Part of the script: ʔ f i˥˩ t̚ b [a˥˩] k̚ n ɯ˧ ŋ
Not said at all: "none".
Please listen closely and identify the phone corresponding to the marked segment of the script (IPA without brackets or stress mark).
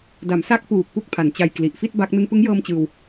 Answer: a˦˥